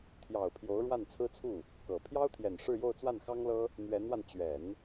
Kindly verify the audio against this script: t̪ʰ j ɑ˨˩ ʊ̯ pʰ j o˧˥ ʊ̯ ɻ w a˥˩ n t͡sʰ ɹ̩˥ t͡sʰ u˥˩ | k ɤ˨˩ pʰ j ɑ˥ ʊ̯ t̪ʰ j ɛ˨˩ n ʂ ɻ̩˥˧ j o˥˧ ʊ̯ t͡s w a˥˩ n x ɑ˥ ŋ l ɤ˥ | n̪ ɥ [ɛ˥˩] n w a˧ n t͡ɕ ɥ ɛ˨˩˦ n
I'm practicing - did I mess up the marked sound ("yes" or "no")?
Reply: yes